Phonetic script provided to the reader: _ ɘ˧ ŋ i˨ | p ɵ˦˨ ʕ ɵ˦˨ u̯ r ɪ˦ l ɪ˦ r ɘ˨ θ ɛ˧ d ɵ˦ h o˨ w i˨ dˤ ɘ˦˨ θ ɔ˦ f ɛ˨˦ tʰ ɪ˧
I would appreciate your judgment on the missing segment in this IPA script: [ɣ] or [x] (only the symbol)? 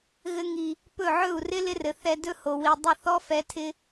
ɣ